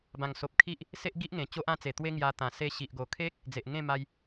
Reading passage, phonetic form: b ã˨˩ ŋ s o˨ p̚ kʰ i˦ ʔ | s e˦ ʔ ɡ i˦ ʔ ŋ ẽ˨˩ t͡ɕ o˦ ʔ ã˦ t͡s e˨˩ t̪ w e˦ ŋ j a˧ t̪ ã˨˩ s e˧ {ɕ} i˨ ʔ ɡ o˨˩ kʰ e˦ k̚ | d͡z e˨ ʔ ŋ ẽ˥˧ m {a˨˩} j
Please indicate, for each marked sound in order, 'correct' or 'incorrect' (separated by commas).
correct, incorrect